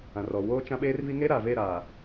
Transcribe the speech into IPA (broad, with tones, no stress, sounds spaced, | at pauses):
ã˨ r ɔ˨ w oː˦ t͡ʃ ã˦ ɓ eː˦ r v i˦ ŋ e˦ ɾ aː˨ v e˦˨ ɾ aː˨